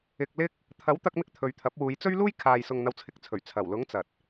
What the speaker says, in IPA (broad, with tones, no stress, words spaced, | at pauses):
ɪ˧k̚ lɪ˥k̚ | t̪ʰɐ˨˥wt̪ɐ˧k̚mɪ˧k̚ t̪ʰɵ˨˧ɥt̪ʰɐ˨˥p̚ wuː˨˧jt͡sɵ˥ɥluː˥jkʰaː˨j sʊ˨ŋn̪ɐ˨wt͡sʰɪ˨k̚t͡sʰɵ˨˩ɥ t͡sʰɐ˨˩wlʊ˨˥ŋ t͡sɐ˨t̚